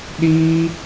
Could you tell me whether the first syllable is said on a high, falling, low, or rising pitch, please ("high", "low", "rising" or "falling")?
high